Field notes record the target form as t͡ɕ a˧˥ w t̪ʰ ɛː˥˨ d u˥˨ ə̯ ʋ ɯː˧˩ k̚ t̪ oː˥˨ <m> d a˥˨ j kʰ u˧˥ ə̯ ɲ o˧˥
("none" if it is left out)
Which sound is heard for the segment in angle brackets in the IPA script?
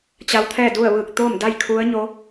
m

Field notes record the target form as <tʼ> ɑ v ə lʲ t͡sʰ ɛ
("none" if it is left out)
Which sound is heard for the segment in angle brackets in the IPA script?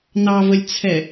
n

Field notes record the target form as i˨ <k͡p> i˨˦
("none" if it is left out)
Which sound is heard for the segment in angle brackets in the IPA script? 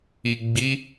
ɡ͡b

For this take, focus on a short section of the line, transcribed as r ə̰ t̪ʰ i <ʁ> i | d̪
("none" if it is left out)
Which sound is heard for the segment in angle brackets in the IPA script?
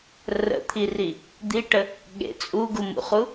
r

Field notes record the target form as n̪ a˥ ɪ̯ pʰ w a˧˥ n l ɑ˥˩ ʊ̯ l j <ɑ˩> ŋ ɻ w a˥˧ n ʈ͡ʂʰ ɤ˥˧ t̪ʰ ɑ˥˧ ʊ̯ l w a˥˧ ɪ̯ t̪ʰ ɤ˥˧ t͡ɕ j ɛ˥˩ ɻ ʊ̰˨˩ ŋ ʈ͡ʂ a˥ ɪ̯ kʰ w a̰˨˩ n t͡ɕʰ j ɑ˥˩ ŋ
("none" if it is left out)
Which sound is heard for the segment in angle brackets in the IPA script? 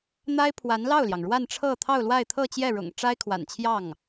ɑ˩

